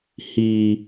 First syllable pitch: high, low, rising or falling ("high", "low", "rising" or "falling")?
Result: high